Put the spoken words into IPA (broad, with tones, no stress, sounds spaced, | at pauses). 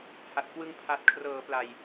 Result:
h a˨˩ t̚ k w ɯ˧ ŋ pʰ a˨˩ t̚ kʰ r ɤː˩˦ p l a˨˩ j